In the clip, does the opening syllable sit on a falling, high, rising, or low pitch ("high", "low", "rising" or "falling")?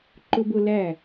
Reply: high